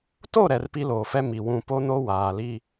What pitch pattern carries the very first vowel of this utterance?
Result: falling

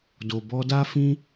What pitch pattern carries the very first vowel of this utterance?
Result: low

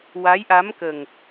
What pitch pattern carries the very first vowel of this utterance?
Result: rising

